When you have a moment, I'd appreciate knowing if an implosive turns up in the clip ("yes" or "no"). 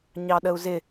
yes